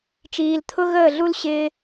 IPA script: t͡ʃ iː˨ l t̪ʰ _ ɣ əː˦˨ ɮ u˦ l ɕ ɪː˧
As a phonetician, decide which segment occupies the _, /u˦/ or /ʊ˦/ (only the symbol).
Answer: ʊ˦